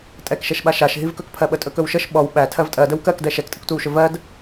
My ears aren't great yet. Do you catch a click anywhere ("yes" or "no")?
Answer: no